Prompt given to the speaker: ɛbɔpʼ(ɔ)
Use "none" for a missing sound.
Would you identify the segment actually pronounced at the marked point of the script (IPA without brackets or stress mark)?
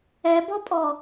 ɔ